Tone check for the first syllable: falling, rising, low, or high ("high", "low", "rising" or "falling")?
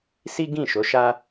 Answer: high